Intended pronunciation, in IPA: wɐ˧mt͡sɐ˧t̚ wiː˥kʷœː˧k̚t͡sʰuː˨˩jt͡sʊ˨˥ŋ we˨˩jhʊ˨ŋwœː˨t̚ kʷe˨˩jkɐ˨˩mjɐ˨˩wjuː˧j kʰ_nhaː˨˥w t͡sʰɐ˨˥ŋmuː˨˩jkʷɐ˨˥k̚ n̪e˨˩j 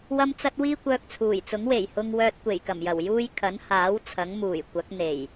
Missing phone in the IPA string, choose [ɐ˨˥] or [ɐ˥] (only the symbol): ɐ˨˥